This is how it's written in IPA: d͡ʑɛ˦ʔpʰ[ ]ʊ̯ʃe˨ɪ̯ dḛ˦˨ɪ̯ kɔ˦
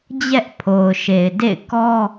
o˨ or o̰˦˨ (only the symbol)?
o˨